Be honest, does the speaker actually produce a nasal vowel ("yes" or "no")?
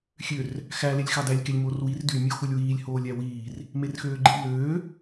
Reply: no